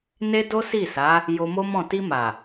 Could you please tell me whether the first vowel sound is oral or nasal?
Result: oral